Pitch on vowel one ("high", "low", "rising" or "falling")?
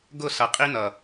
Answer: falling